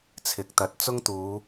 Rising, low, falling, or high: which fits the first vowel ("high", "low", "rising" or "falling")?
rising